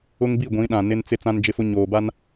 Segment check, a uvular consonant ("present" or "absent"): absent